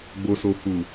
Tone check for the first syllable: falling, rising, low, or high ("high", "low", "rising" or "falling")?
low